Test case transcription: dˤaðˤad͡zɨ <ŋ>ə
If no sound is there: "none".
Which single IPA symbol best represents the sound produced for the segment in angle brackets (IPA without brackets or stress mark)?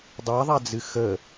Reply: x